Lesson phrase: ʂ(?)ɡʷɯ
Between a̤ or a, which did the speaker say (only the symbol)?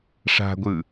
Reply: a̤